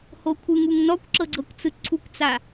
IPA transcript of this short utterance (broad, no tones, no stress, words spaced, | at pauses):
hokʷʰɯŋuŋ nɔkʷǁɤɡ͡ǀɤkʷt͡sɯ ǀʰukʷt͡sa